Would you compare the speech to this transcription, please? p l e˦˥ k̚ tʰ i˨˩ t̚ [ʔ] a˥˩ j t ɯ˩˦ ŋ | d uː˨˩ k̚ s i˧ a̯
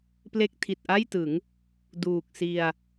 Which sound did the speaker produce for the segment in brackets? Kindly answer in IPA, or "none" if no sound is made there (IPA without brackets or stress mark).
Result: ʔ